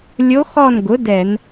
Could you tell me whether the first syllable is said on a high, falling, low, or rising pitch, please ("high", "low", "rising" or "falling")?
rising